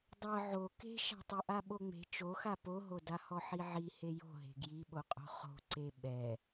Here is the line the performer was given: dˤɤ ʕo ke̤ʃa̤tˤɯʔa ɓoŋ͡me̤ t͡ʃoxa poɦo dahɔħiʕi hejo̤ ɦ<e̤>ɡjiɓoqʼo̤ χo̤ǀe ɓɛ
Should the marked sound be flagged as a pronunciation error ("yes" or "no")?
no